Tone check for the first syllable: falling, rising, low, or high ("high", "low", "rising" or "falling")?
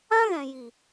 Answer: high